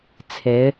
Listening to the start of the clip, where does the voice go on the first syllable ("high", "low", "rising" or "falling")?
rising